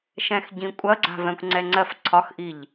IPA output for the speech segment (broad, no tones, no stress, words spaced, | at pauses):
ʃɛ̃xɟĩkʷʼɐ ɡ͡ǀa̤vɛ̃kʷŋ͡ǀɛŋ͡ǀɜf ǀʰɒxʔiʎ